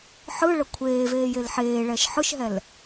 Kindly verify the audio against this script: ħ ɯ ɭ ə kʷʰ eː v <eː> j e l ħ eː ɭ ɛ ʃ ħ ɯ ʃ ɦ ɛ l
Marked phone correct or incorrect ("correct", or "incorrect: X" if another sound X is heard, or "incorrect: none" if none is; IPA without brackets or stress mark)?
correct